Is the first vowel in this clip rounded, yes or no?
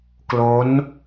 yes